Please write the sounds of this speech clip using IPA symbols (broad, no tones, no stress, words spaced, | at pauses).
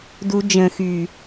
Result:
du d͡ʒə̃ xy